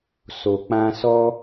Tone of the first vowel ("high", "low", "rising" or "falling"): low